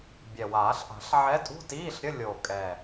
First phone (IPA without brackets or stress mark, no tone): bʲ